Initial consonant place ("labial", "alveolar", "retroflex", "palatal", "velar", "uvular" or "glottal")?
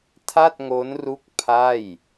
alveolar